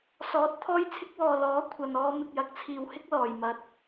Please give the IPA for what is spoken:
sɔː˨˥t̚ t̪ʰɔː˧jt͡sʰɪ˧k̚wɔː˨ lɔː˨˥ kʷʰɐ˨nɔː˧ mɪ˨k̚jɐ˨˥k̚t͡sʰiː˨whɪ˥k̚ lɔː˨jmɐ˧t̚

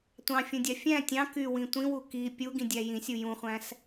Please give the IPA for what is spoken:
tʷɑ̃fʲũdʲɑ fʲæ̃ tʲɑ̃ kywĩ tʷĩwu ki pʲuɡĩdʲæ jĩsʲu jũχʷæ̃s

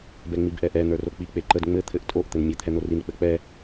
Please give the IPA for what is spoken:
bɛŋ͡mibʔɛʔɛ n̪ə˞rok͡pi k͡peǃəd ŋ͡mɘ t̪ʰɘʔtʼoʔ t̪ɘnmʲɘ t̪ʰɛn̪orin k͡pɘk͡pɛ

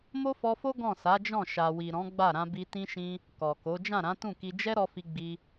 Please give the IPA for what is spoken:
mo˦fɔ˧fo˦ ɡɔ̃˦˨sa˨˦d͡ʒɔ̃˦˨ ʃa˨wi˨ ɾɔ̃˨˦ɡ͡ba˦˨ ɾã˧bi˧tĩ˦ʃĩ˦ | kɔ˨ko˨˦ d͡ʒã˦˨ɾã˨˦ tũ˦˨ki˧ d͡ʒɛ˦ ɾɔ˧fi˧ ɡ͡bi˧

